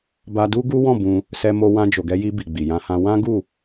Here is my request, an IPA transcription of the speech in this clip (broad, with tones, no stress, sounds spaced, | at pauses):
b a˧ d u˦ ɡ u˦ w ɔ̃˦˨ b ũ˧ | s ɛ˧ m o˧ w ã˧ d͡ʒ o˨ ɡ ɛ˧ j i˧ b i˨ ɡ͡b i˨ j ã˧ h ã˧ w ã˦ ɡ u˦˨